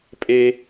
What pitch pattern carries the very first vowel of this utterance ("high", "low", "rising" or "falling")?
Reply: high